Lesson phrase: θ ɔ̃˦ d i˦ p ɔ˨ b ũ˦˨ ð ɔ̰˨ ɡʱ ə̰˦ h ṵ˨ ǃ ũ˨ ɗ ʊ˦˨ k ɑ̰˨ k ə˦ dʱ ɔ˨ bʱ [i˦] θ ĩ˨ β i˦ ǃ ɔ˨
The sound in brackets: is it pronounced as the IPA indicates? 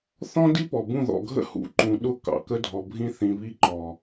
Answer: no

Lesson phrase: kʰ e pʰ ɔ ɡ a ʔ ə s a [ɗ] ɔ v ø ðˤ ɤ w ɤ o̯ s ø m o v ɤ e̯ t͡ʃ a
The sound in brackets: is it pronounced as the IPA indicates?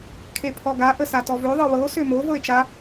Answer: no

